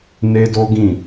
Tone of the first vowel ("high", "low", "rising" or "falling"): high